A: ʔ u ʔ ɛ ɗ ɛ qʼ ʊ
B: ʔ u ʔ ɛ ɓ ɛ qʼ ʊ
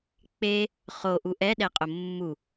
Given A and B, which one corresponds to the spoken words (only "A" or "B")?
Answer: A